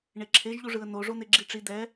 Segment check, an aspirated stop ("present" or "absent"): present